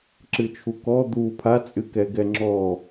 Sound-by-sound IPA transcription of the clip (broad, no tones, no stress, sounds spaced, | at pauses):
ǁ ɨ t͡ʃʰ u k ɔ d̪ u pʰ a t͡sʼ ɨ k ɛ ɡ ɛ ŋ͡ǁ ɔ